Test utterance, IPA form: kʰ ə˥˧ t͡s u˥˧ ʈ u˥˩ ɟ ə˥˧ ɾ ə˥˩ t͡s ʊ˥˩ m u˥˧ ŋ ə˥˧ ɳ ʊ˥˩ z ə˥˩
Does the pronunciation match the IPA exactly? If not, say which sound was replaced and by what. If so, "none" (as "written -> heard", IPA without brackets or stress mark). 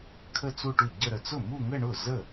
none